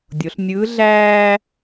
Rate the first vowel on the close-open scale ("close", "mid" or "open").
mid